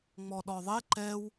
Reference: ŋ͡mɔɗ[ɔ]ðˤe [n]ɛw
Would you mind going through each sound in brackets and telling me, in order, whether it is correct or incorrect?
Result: correct, incorrect: ǃ

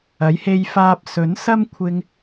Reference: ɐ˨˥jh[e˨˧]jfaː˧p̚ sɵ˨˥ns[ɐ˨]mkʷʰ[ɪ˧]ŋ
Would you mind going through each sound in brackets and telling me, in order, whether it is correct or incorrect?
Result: incorrect: e˧, incorrect: ɐ˥, correct

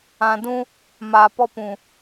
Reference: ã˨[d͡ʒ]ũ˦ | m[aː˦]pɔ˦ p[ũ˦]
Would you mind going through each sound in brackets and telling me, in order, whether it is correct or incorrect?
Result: incorrect: d, incorrect: aː˨, incorrect: ũ˨

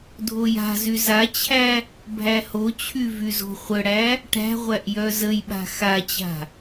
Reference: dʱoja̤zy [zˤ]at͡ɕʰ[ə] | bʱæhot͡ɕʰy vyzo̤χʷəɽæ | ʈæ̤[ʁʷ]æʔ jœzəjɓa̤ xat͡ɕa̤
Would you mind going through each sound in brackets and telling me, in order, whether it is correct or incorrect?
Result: incorrect: z, incorrect: æ, correct

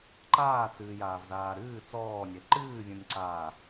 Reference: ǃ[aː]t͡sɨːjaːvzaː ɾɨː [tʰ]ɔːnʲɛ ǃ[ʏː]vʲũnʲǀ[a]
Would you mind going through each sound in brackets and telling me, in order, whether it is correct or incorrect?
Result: correct, incorrect: t͡s, incorrect: ɨː, incorrect: aː

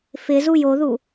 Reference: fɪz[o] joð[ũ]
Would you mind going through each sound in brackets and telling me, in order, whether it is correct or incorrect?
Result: incorrect: u, incorrect: u

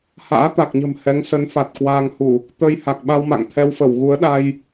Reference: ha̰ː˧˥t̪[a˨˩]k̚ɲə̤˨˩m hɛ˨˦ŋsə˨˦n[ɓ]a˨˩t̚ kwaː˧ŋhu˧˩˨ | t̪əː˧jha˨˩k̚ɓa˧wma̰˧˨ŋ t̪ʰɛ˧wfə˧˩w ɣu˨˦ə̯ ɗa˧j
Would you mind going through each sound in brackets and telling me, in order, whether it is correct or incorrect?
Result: correct, incorrect: f

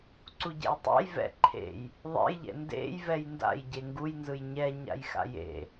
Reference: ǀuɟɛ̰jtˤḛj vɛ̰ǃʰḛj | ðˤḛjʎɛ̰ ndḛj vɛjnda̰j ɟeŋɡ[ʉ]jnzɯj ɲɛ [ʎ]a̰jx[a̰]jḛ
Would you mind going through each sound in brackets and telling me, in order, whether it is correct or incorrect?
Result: incorrect: u, incorrect: ɲ, correct

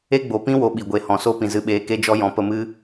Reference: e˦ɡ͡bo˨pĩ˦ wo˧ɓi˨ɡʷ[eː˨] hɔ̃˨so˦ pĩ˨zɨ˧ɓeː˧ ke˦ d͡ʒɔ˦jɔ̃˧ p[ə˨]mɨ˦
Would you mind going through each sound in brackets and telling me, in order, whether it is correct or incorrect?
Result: incorrect: e˨, incorrect: ə˧

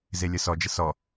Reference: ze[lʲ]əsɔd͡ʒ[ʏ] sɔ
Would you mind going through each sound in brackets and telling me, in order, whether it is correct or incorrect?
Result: correct, incorrect: ə

